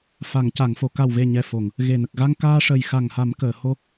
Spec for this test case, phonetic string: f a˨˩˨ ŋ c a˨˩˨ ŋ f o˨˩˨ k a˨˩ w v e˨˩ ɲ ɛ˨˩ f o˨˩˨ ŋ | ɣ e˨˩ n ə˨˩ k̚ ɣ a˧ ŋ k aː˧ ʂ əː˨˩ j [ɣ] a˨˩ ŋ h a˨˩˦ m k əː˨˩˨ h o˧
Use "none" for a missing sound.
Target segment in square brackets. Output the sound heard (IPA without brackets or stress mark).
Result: x